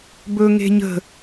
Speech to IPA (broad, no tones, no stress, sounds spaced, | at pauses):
b ɵ ŋ e̤ ɲ ə̤